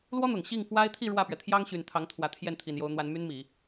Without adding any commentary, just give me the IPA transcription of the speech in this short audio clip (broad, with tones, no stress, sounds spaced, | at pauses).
l w ɔ˥ n̪ ʊ˨˩ ŋ ɕ i˥˩ ŋ f w a˥ ɪ̯ t̪ʰ i˥˧ ɻ w ä˥˩ p ɥ ɛ˩ t̪ʰ j ɑ˥ ŋ ɕ y˨˩ n t̪ʰ ɑ˧˥ ŋ t̪ʰ w ä˧˥ t̪ʰ j ɛ˥˩ n t̪ʰ i˨˩ n j o˧˥ ʊ̯ n̪ w a˧˥ n m y˥ n m i˨˩˦